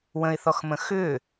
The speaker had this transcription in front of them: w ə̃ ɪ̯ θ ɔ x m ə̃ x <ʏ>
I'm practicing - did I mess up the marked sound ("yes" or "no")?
no